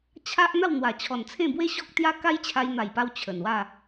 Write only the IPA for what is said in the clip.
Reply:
t͡ɕʰ a˦ ʔ n̪ a˥˧ w n̪ w a˨˩ t͡ɕʰ ɔ˨˩ n t͡sʰ ẽ˥˧ b w e˦ ɕ ɔ˦ k̚ t̪ j a˦ k a˦ j t͡ɕʰ a˧ j n̪ a˨˩ j p a˧ w t͡ɕʰ ə˨˩ n w a˥˧

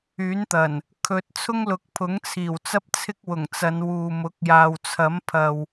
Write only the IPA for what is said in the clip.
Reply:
yː˨˥ n t̪ ɐ˨˩ n | kʰ ɵ˧ t̚ t͡sʰ ʊ˥ ŋ l ʊ˨˥ k̚ pʰ ʊ˨˥ ŋ t͡sʰ iː˨˩ w t͡s ɐ˥ p̚ t͡sʰ ɪ˥ k̚ w ʊ˨˩ ŋ t͡s ɐ˨˧ n w uː˨ m ʊ˨˥ k̚ j aː˨ w t͡sʰ ɐ˨˥ m pʰ ɐ˨ w

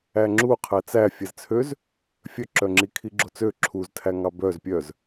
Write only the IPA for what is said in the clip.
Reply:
æ ŋ͡ǁ u qʰ æ t͡s æ fʲ ɛ z t͡sʰ ø z | fʲ œ ǁ œ ŋ͡ǁ i kʰ i ɡ͡ǁ o t͡s ø ǁʰ u z tʰ æ ŋ ɑ b œ z pʲ œ z

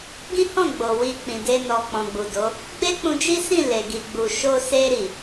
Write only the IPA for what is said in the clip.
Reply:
ɡ ĩ˦ h ɔ̃˦˨ ɡ͡b o˨ w i˧ k͡p ĩ˨ d e˧ n ɔ˨ k͡p ɔ̃˨ ɡ͡b u˨ d o˨˦ | ɡ͡b e˦ k͡p ũ˧ d͡ʒ i˦ s ĩ˦˨ l e˨ ɡ i˨ ɡ͡b u˨ ʃ o˧ s e˧ ɾ i˨

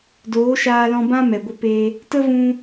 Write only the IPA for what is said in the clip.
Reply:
d oː˨˦ ʃ aː˧ l ɔ̃˧ b ã˦ m ɛ˨ ɡʷ ə˧ p e˧ | t ə˦ v ũ˧

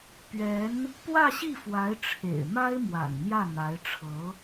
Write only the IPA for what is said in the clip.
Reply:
p ɥ ɛ˧˥ n | p w ä˥˧ ɕ i˥˩ f w a˧˥ ɪ̯ ʈ͡ʂʰ ḛ˨˩ ɪ̯ m a˥ ɪ̯ m w a̰˨˩ n n̪ j ä˥˩ n̪ a˧˥ ɪ̯ ʈ͡ʂʰ ɤ˧˥

